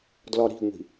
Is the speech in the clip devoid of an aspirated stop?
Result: yes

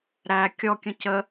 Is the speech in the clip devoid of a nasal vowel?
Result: no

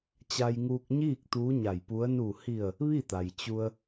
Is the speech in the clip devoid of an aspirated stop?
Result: yes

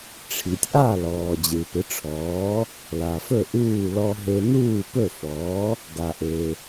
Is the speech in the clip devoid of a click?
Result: yes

